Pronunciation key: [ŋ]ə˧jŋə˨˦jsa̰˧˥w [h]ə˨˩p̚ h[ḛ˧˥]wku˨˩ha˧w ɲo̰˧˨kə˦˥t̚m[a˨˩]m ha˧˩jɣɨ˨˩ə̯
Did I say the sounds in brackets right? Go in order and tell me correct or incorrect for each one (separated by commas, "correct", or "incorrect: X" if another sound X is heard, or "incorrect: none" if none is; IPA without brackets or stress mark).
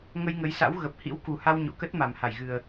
correct, incorrect: ɣ, incorrect: ḭ˧˥, correct